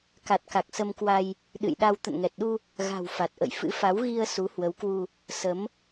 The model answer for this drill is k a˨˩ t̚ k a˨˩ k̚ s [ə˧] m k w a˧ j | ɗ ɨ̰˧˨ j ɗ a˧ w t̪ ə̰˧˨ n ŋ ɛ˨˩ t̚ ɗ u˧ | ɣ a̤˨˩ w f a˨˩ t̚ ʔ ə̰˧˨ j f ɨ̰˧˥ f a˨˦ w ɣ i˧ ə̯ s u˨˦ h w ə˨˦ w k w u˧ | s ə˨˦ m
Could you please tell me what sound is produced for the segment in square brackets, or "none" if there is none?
ə˧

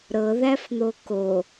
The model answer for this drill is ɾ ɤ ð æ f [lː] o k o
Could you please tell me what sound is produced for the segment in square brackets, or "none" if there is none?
n̪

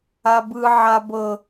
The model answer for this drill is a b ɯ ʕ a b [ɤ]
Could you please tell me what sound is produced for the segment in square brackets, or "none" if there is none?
ɤ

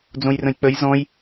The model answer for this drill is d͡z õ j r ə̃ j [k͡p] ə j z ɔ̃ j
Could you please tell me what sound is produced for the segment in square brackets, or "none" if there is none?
k͡p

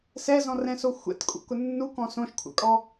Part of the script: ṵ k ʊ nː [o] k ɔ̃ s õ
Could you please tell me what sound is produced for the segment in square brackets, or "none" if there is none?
u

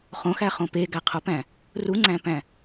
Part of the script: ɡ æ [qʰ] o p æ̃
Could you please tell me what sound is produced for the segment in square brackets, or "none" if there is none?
qʰ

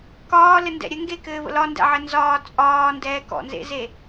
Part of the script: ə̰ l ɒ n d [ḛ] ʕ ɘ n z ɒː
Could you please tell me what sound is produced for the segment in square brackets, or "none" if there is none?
ɛ̰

